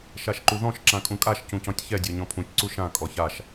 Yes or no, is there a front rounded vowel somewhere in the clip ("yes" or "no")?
no